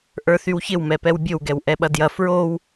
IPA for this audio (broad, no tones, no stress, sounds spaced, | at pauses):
ʔ ə˞ θ y w ç ɪ w m ɛ p ɛ w bʲ o w ɡ ɛ w ʔ ɛ ɓ ɐ d j ɐ f ɹ o w